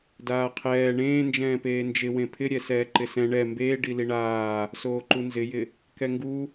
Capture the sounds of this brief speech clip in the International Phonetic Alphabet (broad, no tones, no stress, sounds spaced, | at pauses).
d aː qʰ ɛː ɳ ẽː n d͡ʒ ɛ̃ː p eː n d͡ʒ ɪ w ẽ pʰ ɪ ɾʲ ɛ s ɛː ǃ ɪ s ɛ̃ ɳ ɛ m b eː ɖ i l i ɳ aː | s oː ǃ u n z ɪ j ɪ | k ɛ ŋ ɡ u